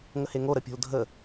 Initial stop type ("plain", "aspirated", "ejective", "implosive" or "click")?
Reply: plain